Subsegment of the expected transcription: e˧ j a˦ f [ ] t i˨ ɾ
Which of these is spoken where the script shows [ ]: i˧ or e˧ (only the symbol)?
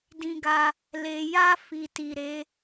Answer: i˧